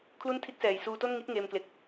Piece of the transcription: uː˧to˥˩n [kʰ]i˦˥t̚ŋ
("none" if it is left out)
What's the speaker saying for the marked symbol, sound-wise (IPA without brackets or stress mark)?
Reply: ŋ